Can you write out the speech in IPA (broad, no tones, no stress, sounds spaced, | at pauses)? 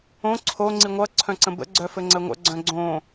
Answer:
õ ǀʰ o ŋ͡ǀ i ŋʷ ʌ ǀʰ œ̃ ǀ ə̃ b ə̰ ɡ͡ǀ œ f ɘ ŋ͡ǀ ə ŋʷ ə̰ ɡ͡ǀ œ̃ ɡ͡ǀ õ